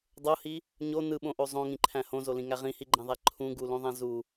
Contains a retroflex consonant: no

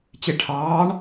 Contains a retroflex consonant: yes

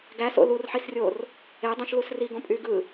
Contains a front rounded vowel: yes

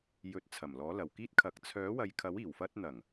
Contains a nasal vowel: no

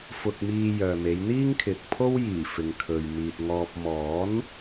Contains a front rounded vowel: yes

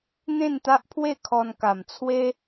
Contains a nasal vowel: yes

